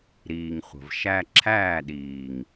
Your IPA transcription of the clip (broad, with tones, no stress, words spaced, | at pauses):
ɾiː˨ŋχʷə̤˨v ʃæ˧ǁʰæː˦˨ɗiː˨ŋ